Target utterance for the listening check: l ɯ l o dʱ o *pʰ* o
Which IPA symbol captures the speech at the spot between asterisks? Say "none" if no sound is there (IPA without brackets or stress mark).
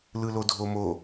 m